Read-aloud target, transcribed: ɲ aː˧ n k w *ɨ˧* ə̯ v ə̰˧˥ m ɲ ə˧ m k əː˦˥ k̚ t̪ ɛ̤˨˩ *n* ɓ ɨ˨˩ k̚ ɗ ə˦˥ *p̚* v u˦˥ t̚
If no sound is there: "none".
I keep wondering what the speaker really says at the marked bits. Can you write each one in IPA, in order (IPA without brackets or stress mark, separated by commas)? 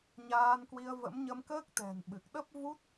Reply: i˧, n, p̚